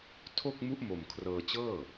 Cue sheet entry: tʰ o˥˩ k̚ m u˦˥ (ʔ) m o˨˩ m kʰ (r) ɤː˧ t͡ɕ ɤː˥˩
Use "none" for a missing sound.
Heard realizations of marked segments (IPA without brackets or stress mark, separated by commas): ʔ, r